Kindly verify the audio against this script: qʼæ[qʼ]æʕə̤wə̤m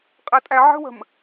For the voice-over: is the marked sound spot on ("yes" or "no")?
no